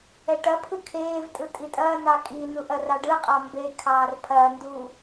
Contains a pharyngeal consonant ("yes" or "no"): no